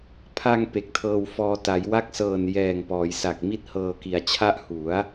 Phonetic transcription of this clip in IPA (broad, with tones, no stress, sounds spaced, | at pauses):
pʰ a˧ ŋ p e˨˩ k̚ tʰ ɤː˧ w f ɔː˧ t a˩˦ j w a˦˥ k̚ s ɤː˨˩ n j ɛː˨˩ ŋ p ɔː˩˦ j s a˨˩ k̚ m i˥˩ t̚ h ɤː˧ k i˨˩ a̯ t͡ɕʰ a˥˩ ʔ h u˩˦ a̯